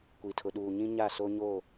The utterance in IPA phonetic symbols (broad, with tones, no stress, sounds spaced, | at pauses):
kʷ i˨ tʰ ʊ˨ ɗ uː˨ ɲ ĩ˦ ɲ a˦˨ s o˦ ɲ oː˦˨